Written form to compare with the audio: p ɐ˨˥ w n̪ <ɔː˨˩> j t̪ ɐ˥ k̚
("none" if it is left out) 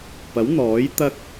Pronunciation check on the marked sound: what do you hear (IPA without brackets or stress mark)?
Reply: ɔː˨˥